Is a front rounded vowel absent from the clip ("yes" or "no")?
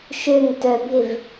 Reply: no